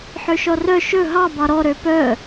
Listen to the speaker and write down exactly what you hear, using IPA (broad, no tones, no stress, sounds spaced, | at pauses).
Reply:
ħ ø ʃ ɔ r œ ʃ ɵ ɦ ɑ b ɑ ɾ ɔ ɾ ø p œ